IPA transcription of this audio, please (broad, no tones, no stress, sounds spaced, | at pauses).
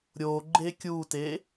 ɾʲ o ɡ͡ǃ e kʲ u t e